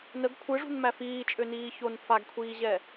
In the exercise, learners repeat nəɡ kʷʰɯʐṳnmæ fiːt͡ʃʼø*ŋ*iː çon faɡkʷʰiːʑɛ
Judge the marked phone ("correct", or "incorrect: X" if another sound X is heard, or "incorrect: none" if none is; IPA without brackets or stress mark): incorrect: n